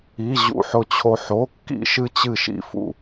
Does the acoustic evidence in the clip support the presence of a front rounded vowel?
no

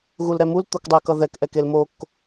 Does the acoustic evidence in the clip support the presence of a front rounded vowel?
no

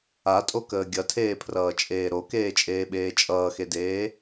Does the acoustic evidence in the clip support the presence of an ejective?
yes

